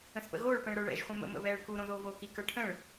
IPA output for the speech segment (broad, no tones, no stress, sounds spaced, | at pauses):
ə̃ s p ə̰ ɣ oː ɭ p ɛ̃ ɭ ɾ ə˞ ɭ ɛ̰ ʒ χʷ ɛ̃ m ə̰ m ə̰ β ɛː ɭ k u ɾ õ ð oː v oː k i k ə˞ ʈʰ ə̃ ɭ